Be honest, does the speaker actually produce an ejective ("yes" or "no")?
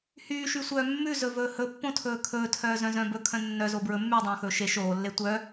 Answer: no